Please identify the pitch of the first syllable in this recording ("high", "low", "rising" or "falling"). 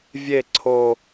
falling